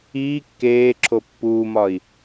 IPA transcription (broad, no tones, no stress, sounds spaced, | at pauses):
iː kː eː ǁʰ o pː uː m ɒ i̯